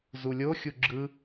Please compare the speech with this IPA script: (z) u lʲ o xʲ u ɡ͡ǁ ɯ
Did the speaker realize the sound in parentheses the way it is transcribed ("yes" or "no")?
yes